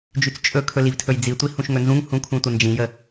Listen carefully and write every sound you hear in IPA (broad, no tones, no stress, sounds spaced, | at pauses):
d͡ʒ y t͡s t͡ʃʼ ɵ kʰ ɵ l i v tʰ ɵ j d͡z i tʷ i h ũ ʃ ŋ ɵ n z ũ ŋ h ũ kʰ ũ tʷ ə n d͡ʒ ĩ j ə